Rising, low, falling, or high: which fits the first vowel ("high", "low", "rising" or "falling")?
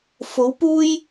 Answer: rising